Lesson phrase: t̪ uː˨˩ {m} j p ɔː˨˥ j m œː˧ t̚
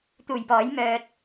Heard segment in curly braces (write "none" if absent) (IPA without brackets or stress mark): none